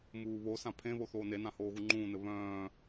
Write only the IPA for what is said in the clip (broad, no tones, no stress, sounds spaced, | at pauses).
m uː β o s ã pʰ ẽ β o θ oː n e n ã h oː ɣ u ŋ͡ǃ ũː n ɘ β œ̃ː